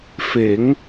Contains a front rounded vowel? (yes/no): no